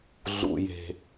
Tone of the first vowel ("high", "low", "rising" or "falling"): low